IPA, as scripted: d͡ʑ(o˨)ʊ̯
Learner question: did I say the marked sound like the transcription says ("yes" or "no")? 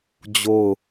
no